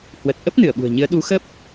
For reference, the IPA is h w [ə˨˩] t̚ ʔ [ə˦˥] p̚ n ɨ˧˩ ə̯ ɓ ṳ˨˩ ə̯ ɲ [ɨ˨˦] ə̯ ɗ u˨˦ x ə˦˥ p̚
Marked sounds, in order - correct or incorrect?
correct, correct, correct

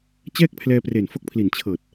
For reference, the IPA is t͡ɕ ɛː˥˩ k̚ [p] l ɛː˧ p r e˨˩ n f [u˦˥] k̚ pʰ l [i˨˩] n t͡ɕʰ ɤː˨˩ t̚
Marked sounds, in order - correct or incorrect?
incorrect: pʰ, incorrect: o˦˥, correct

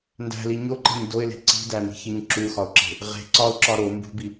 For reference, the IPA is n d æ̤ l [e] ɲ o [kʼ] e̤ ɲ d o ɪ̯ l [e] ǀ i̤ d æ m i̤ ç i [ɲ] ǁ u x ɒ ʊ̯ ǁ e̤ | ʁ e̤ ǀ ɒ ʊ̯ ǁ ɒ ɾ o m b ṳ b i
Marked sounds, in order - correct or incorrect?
incorrect: i, incorrect: ǃ, incorrect: e̤, correct

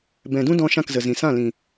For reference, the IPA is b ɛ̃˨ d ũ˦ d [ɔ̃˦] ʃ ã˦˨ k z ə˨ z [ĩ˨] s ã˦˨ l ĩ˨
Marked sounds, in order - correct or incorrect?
incorrect: ɔ̃˧, correct

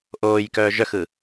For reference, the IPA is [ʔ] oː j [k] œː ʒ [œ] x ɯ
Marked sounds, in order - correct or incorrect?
correct, correct, correct

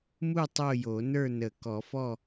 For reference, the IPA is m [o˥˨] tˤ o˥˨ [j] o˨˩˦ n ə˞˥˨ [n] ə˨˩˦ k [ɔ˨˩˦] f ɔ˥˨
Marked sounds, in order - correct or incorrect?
incorrect: u˥˨, correct, correct, correct

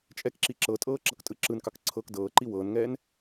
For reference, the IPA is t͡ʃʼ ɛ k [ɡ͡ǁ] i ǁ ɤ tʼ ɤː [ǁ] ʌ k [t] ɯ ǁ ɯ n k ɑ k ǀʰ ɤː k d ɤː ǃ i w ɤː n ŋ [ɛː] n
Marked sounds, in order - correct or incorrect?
incorrect: ǁ, correct, incorrect: tʼ, correct

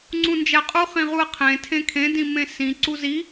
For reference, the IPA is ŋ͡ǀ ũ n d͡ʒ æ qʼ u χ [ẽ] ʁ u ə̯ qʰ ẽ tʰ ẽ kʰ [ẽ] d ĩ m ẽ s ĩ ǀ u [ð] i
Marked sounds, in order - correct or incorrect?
incorrect: ĩ, correct, incorrect: z

